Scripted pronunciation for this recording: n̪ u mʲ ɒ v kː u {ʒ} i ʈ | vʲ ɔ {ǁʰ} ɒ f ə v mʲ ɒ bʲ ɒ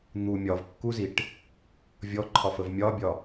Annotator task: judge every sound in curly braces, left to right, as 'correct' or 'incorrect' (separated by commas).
incorrect, incorrect